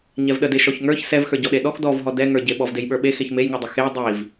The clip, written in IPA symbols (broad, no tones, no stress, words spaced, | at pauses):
ɲɛvɗəde ʃɔçŋə˞ç sɛvxə˞ ɟɔɗeɗɔx dɔvɦɔ dɛŋə˞ɟe ɓɔvdejɓə˞ɓe xeçmejŋə˞dˤə xe dˤiv